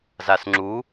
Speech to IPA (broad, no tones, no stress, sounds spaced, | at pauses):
z a s ŋ͡ǁ u